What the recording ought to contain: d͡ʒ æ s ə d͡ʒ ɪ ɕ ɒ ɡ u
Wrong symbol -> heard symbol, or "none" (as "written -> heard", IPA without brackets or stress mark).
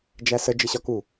ɡ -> k